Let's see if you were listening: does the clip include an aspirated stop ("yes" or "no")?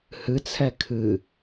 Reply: yes